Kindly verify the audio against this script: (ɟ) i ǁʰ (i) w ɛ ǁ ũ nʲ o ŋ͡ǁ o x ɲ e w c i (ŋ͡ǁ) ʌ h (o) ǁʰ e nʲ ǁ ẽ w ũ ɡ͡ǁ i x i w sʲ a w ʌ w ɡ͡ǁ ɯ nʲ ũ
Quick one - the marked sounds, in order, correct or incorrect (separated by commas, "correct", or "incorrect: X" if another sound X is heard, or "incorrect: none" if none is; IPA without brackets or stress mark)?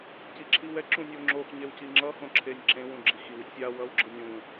incorrect: c, correct, correct, incorrect: õ